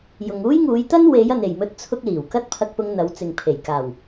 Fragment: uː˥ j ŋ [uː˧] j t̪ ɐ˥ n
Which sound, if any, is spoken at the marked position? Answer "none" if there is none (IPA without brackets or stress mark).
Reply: uː˨˧